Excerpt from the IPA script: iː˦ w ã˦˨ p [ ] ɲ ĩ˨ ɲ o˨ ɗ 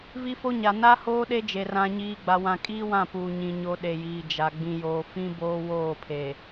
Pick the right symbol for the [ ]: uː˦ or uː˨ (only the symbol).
uː˨